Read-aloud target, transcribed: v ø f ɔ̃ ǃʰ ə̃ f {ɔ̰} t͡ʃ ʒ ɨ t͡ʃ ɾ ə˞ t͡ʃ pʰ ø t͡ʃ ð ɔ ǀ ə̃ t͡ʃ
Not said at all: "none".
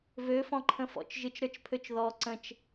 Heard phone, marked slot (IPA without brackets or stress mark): ɔ̰